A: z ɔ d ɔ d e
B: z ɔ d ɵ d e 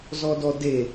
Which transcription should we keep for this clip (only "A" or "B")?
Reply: A